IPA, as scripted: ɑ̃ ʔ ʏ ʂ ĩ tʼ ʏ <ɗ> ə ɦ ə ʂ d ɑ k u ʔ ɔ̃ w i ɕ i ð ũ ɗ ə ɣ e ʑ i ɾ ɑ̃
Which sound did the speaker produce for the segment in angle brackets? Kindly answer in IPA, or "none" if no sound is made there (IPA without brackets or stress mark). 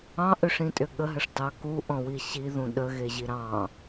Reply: ɠ